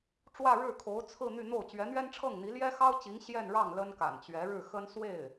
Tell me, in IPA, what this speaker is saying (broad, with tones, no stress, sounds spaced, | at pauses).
ʈ͡ʂ w ä˥˧ ɻ ɻ̩˥˩ kʰ o˧˥ ʊ̯ t͡sʰ ɹ̩˥˧ n̪ y˥˧ n̪ o˥˩ ʊ̯ t͡ɕ ɥ ɛ˧˥ n̪ ɥ ɛ˥ n ʈ͡ʂʰ ɤ˥˩ ŋ n̪ i˧˥ l j ɛ˥ x ɑ˥ ʊ̯ t͡ɕ i˧˥ ŋ ɕ j ɛ˥˧ n ɻ ɑ˥˩ ŋ l ə˥ n k a̰˨˩ n t͡ɕ ɥ ɛ˧˥ ɻ ɻ̩˥˩ x ə˥ n s w e˥˩ ɪ̯